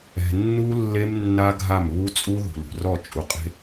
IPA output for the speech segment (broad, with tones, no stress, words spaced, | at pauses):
ɛ̤˨ nːu˦lːe˦m nːa˦ ɡʱa˦˨m βu˦t͡sʼu˦ ðṳ˨lṳ˨rɔ˦˨ t͡ʃʼu˨qʼe̤˦